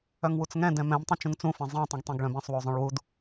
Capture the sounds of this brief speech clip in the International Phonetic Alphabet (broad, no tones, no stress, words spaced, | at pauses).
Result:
œŋwut͡sŋɛ̃ dɛ̃mɛ̃m tˤĩt͡ʃũŋt͡sũ fɛ̃zˤĩ tˤũɡtˤɛ̃ɡɭœ̃bɛ̃sˤ wozˤœ̃ɭwud